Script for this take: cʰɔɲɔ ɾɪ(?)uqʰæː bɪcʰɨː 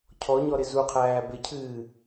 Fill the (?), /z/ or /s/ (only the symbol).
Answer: z